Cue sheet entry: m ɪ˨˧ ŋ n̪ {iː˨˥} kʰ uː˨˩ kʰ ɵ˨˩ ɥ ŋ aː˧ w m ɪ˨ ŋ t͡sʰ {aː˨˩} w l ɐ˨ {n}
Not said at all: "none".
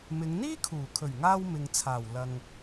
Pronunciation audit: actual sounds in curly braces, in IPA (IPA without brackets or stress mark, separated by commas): iː˥, aː˨˩, ŋ